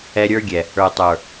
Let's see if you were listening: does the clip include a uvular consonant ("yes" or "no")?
no